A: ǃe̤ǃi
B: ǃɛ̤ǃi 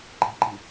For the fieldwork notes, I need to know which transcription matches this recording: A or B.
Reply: B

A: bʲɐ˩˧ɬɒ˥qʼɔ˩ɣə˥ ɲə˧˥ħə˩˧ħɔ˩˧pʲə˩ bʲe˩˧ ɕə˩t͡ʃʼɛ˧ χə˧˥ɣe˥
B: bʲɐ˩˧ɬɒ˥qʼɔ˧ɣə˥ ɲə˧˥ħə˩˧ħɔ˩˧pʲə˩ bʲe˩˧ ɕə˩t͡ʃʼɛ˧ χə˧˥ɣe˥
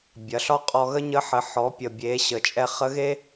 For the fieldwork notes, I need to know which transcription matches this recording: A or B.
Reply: B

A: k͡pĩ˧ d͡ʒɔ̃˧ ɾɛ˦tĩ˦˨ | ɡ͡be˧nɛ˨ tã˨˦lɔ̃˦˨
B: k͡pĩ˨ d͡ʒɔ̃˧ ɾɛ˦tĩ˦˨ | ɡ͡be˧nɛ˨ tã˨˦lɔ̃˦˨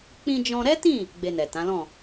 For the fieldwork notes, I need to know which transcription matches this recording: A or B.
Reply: A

